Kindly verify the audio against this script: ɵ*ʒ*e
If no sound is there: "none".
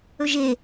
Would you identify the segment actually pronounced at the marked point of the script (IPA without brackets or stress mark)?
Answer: ʒ